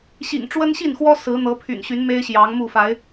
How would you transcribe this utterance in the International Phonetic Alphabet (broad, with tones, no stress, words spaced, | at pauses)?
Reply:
ɕḭ˨˩ŋ ʈ͡ʂwə˦nɕi˥˨nxwɔ˦ sɹ̩˨˦ n̪ɤ˨˦pʰy̰˨˩nɕy˨˦n me˦ɪ̯ɕjɑ˨˦ŋmu˥˨ fa˨˦ɪ̯